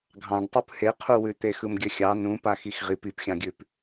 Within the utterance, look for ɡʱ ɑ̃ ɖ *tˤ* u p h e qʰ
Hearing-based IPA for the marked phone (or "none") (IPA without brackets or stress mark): tˤ